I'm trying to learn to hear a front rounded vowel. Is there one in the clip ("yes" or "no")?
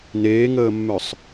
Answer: yes